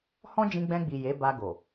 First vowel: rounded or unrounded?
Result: rounded